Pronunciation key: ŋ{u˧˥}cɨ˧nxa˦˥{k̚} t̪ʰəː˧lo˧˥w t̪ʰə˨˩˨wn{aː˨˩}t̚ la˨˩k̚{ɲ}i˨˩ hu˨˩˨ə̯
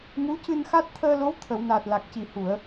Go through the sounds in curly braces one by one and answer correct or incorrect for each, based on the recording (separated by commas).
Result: correct, incorrect, correct, incorrect